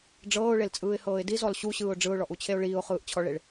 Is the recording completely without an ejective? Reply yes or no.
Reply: no